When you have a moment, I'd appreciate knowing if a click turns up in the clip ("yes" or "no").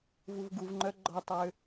yes